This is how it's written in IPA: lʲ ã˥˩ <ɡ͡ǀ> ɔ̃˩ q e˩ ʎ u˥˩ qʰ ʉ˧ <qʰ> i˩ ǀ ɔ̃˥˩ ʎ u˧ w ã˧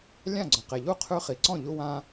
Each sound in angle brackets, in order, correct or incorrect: correct, incorrect: χ

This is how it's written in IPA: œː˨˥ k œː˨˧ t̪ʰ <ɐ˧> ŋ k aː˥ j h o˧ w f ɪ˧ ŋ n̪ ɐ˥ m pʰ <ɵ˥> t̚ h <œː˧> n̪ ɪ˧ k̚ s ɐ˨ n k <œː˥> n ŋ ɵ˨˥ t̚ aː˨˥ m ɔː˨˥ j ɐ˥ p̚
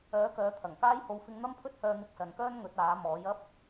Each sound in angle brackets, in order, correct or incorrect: incorrect: ɐ˨˩, correct, correct, correct

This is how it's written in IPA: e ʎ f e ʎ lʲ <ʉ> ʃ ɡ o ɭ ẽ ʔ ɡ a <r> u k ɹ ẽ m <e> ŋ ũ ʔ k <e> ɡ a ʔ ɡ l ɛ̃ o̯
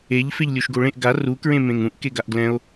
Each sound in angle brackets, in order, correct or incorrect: incorrect: u, correct, incorrect: ẽ, correct

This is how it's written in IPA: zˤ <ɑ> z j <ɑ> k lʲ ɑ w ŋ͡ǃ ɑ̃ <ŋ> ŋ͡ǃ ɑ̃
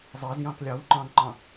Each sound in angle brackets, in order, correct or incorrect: correct, incorrect: ɑ̃, correct

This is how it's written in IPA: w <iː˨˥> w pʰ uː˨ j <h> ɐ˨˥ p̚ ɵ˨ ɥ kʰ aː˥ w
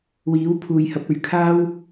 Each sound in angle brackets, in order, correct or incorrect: correct, correct

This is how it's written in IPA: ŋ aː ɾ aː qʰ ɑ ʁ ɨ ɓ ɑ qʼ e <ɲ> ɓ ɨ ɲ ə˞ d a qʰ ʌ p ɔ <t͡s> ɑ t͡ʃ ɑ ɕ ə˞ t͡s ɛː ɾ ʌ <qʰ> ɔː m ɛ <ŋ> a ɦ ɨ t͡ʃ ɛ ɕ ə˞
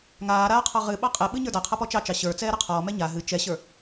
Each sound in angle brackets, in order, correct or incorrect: incorrect: none, incorrect: t͡ʃ, correct, incorrect: ɲ

